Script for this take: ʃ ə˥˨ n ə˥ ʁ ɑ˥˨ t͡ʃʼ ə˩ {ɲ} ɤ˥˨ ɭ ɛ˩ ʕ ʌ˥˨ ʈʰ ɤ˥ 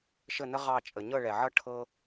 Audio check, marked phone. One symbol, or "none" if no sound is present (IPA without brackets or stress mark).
ɲ